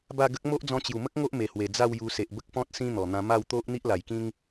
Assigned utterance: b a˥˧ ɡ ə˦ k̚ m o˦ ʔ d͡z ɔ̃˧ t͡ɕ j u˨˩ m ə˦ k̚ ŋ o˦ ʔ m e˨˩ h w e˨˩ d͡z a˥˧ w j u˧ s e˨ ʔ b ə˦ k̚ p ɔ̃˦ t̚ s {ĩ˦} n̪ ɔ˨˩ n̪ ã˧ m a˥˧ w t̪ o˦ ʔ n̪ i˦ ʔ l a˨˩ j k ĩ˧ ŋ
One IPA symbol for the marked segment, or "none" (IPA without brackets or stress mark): ĩ˦